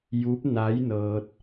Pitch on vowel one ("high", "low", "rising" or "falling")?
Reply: rising